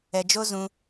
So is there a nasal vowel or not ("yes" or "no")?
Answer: yes